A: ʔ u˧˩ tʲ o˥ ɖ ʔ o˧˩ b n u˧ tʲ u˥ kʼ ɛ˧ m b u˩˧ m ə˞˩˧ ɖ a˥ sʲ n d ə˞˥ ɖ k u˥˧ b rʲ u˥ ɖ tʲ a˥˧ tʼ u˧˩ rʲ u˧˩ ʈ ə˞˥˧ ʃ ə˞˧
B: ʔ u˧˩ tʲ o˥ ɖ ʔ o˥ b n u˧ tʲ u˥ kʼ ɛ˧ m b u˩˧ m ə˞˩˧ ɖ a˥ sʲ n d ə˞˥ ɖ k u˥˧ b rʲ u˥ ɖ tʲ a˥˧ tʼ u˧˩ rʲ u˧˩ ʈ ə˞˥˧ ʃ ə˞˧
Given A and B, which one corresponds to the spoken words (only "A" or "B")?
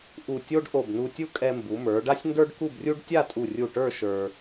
A